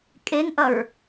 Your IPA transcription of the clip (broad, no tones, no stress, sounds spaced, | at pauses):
kʼ e ŋ ʔ ʌ ɹ